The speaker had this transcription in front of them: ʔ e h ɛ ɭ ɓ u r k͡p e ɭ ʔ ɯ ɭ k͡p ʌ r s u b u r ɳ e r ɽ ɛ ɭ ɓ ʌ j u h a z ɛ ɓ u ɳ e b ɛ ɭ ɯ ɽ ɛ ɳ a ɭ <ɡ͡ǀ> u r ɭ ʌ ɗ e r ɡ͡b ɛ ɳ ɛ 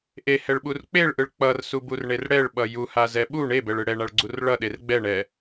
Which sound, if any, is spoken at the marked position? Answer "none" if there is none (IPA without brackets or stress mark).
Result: ɡ͡ǀ